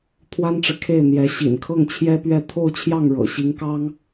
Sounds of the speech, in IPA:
t̪ʰ w a˥ n ʈ͡ʂ ɻ̩˨ kʰ e˥˩ ɪ̯ n̪ j ɛ˧˥ ɕ ḭ˨˩ n kʰ ɤ˥˩ ŋ t͡ɕʰ j ɛ˥ p ɥ ɛ˥˧ t̪ʰ o˥˧ ʊ̯ t͡ɕʰ j ɑ˥˩ ŋ ɻ ɤ̰˨˩ ɕ i˧˥ ŋ k ɑ˥ ŋ

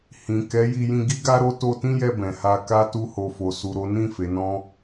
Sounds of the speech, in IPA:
h ĩ˨ k ɛ˨˦ j i˧ j ĩ˧ ɡ i˦ ɡ a˦ ɾ o˦ t o˧ t ĩ˦ j ɛ˧ b ɛ̃˨ h a˧ k a˦ t u˦ h o˧ f o˧ s u˧ ɾ o˦ n ĩ˦˨ f e˨˦ n ɔ̃˦

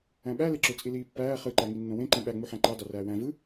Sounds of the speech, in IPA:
æ̃ ɓ æ l e ǁ ø t͡sʼ i l iː pː æː χ ɯ ǃ æ ŋ i nː õ w ẽ ǃ ĩ ɓ æ ŋ͡m u ħ æ̃ ǃ ɑ d ɑ r æː w æ̃ v ɯ

